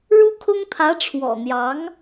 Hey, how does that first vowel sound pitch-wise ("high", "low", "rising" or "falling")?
high